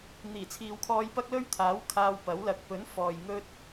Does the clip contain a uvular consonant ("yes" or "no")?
no